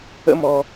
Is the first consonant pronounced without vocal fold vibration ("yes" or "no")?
no